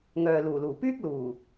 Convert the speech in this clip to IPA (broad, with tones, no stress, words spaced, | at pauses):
ŋœː˨luː˨˩luː˨˩ pyː˥k̚luː˨˩